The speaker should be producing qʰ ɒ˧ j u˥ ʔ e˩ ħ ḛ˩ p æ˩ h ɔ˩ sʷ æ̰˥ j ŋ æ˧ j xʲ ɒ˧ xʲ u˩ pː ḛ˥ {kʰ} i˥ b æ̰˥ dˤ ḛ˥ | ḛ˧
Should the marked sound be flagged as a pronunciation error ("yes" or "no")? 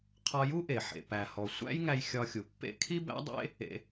no